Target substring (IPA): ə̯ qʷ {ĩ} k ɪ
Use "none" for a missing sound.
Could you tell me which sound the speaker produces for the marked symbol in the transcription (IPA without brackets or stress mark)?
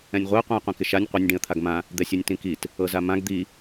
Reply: ĩ